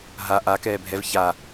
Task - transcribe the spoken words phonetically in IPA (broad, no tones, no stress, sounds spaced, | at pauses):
ɦ a ʔ a k ɛː bʱ ɛ v ç a